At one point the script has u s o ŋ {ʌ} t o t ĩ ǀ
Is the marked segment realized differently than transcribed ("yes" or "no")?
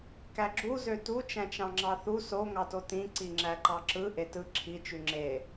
yes